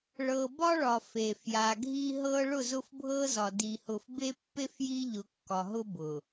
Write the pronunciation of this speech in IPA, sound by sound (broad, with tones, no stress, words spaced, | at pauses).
ɭɤ˨bɒ˦ɭɒ˨ fe˨ fja˨ɡʱi˦ ɦɤ˦ ɭʊ˦˨zʊ˦fbʱɤ˦zɒ˨ di˨hʊ˨f be˦pːe˦f ji˦ʎʊ˨kːɒ˨ɦʊ˦ bʊ˨